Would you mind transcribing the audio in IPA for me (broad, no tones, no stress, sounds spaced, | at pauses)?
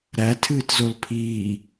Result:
ɾ æ tʰ ɨː t z o l pʰ iː